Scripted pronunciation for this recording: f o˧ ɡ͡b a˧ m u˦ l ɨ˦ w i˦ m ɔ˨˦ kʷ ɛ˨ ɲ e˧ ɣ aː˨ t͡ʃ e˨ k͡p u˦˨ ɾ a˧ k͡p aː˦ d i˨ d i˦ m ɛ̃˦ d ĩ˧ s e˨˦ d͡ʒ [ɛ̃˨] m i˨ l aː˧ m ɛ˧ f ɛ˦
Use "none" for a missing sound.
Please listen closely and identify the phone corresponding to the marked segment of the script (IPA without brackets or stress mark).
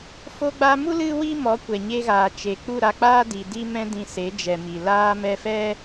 ɛ˨